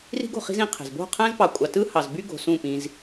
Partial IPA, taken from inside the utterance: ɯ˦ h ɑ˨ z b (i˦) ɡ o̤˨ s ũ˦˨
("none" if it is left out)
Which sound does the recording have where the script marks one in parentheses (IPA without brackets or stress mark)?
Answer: y˦